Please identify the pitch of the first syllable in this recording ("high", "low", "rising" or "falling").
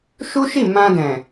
high